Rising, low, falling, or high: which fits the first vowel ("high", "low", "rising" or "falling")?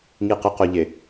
low